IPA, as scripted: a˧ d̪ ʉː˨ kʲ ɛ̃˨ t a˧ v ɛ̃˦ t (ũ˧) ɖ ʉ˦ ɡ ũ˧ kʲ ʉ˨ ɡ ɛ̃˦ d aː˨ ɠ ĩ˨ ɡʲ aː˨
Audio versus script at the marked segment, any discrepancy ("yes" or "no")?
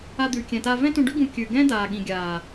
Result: no